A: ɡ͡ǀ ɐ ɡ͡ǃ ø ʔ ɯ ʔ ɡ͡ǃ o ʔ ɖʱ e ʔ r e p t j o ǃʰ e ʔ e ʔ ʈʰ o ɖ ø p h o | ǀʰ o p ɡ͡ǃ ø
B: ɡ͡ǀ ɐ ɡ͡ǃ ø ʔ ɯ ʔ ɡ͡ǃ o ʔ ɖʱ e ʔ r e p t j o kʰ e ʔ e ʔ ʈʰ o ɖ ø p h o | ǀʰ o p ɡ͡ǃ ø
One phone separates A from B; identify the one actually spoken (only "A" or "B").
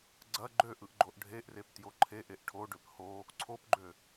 A